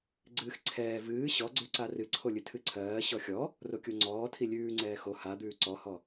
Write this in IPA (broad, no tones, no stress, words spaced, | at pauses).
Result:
ɡ͡ǀɨːxǀʰɛː vɨː ɕɔɡ͡ǀʉǀa rɨǀʰolʲɨ tʰɨǀʰɜː ɕɔxʲɔ | rokʲoŋ͡ǀɔːtʰi lʲʉːŋ͡ǀɛː xo ha d̪ʉːǀɔhɔ